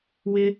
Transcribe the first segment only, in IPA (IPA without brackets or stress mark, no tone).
w